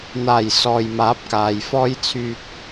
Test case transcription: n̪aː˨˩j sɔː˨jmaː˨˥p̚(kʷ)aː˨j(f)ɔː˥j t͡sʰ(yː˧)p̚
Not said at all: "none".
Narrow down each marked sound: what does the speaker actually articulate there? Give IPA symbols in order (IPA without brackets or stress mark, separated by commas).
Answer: k, f, yː˧